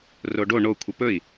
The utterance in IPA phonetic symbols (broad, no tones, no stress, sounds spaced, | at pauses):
r o ɖ o ɳ o kʷʰ e p ɵ i̯